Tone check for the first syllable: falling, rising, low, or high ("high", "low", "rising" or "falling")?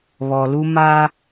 low